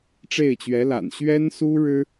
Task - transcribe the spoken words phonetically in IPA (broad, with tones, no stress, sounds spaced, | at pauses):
ʈ͡ʂ e˥˩ ɪ̯ t͡ɕ ɥ ɛ˧˥ l a̰˨˩ n ɕ ɥ ɛ˥ n s u˥ ɻ ɻ̩˥